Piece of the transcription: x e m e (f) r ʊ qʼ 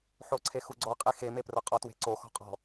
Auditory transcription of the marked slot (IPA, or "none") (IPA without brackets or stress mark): p